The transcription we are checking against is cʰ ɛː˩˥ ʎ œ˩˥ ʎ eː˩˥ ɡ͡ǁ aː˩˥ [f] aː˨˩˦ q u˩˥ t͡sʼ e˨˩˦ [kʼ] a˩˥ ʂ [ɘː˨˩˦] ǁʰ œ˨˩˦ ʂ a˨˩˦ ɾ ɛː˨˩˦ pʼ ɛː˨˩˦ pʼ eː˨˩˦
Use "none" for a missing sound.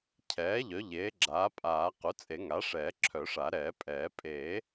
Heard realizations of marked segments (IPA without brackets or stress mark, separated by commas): pʼ, ŋ, ɛː˨˩˦